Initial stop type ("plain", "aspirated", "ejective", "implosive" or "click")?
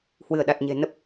implosive